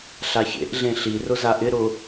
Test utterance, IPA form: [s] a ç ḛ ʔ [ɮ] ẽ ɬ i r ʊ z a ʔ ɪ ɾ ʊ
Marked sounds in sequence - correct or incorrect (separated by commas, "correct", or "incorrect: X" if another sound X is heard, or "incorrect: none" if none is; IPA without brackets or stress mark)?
incorrect: ɬ, correct